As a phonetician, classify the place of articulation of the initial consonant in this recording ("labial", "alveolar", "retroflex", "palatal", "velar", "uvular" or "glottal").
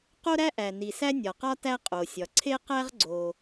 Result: uvular